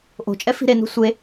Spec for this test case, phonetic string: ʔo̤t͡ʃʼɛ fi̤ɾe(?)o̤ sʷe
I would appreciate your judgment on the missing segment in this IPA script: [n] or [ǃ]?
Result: n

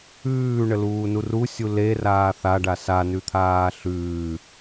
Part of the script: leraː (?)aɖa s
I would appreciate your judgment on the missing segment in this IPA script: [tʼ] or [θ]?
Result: θ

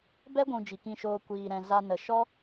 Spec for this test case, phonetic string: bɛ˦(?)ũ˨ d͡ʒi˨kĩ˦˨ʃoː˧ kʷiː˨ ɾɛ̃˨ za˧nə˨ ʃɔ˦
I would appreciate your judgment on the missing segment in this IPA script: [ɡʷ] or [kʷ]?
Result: ɡʷ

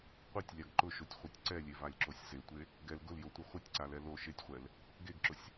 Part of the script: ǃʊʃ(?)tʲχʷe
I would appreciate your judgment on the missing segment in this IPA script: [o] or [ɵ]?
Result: o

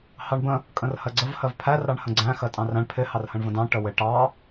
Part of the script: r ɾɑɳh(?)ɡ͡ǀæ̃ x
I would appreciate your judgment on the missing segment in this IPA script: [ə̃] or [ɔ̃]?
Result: ə̃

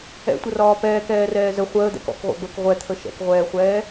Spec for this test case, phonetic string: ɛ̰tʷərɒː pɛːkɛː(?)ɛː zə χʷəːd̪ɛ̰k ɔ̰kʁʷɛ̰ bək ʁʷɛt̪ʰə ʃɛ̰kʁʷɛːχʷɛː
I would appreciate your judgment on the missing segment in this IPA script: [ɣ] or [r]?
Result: r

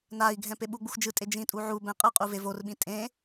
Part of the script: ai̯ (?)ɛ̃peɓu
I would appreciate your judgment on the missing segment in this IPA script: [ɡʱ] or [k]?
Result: ɡʱ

